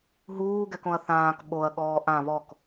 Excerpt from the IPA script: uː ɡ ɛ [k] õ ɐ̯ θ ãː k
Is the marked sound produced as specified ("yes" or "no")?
yes